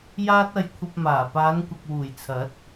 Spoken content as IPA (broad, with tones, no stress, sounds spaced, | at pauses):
j aː˥ t̚ ɐ˧ j kʷʰ ɐ˧ p̚ m aː˨˩ p aː˨˧ n kʷ ɐ˨ k̚ w uː˨˩ j t͡sʰ ɐ˨˥ t̚